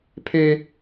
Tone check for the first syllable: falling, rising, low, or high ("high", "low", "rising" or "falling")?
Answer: high